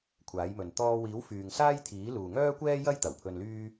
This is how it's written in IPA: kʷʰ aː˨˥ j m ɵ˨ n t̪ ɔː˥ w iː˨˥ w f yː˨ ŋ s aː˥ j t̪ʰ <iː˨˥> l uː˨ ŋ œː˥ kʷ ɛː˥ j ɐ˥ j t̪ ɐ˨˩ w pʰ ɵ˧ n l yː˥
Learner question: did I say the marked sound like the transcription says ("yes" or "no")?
yes